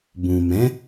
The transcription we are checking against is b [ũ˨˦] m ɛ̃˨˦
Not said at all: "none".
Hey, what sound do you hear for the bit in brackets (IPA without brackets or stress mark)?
ũ˨